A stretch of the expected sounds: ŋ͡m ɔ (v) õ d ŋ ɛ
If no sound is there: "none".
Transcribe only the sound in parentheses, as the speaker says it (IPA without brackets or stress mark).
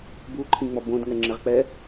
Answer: b